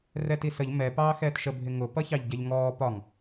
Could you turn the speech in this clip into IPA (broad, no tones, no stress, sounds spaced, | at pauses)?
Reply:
r ɛ t i s ə ʎ m ɛ p ɑː x ɛː t ʃ ə bʱ ɪ ŋ ʊ p ʌ ç ɑ ʎ ɟ ɛ ʎ ŋ ɔː p ɒ ŋ